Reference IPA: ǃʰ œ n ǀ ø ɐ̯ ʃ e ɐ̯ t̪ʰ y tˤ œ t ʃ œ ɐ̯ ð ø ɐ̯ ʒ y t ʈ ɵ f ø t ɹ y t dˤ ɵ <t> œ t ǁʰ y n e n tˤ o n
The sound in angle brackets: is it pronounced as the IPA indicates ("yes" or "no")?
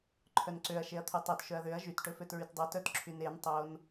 yes